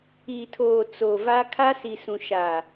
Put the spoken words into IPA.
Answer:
iː˨ tʰ oː˨ t͡s o˨ v a˦ kʰ a˦ s i˨ s ũ˨ ʃ aː˨

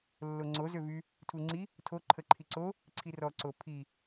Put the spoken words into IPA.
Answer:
lː o ŋ͡ǀ o z ø v y | tʰ u ŋ͡ǀ i | tʰ o ǃʰ ə ǃʰ i ǀ o | ǀʰ i r ɔ ǀ o pʰ i

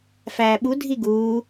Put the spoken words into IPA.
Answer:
f æː ɓ u dʱ i ɡ uː

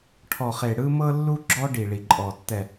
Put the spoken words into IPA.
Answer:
ʈʰ ɔ˨ χ e˨ ɽ ɯ˦ m ɤ˦ lː u˦ ɡ͡ǁ ɔ˦ ɖ i˨ ɭ i˨ ǃʼ ɔ˨ tː ɛ˨

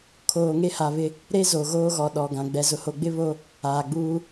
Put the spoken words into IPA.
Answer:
kʰ oː˨ ŋ e˦ h a˨ β ɪ˦ | ɾ e˦ z o˨ ɣ oː˦ ɣ ɔ˨ ɗ ɔ˨ ɡ ã˨ ɡ͡b ɛ˨ z ʊ˨ h o˨ ɡ͡b ɪ˦ β o˦ | aː˨ ɡ͡b uː˦

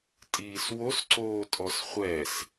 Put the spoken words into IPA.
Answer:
tʼ iː s w o s ǀ oː tʼ ɔ s χʷ ɛ s

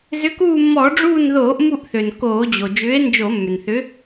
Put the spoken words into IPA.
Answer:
z ʏ˨˥ k uː˦˨ mː ɔː˧˩˧ ɖ͡ʐ uː˦˨ n ð oː˧˩˧ ʔ m u˦˨ ʔ θ ø˩ n k oː˧˩˧ d͡ʑ o˩ d͡ʒ ʏː˨˥ e̯ n d͡ʒ o˧˩˧ mː ʏ˩ n θ ʏ˨˥

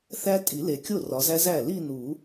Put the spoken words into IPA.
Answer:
θ æ˦˥ tʼ i˨˩˦ l e˨˩ kʲ o˥˩ r ɒ˨˦ z æ˦˥ z æ˥˩ l i˥˧ n u˨˩˦

